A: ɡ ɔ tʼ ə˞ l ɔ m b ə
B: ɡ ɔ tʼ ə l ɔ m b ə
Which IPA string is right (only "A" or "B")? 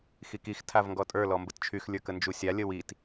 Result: A